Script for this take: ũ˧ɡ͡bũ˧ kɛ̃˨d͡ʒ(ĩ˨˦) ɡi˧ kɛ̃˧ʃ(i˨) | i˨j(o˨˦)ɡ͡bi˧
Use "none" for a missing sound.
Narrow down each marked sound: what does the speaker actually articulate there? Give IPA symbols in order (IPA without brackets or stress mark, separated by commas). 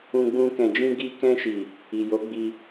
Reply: ĩ˧, i˨, o˨˦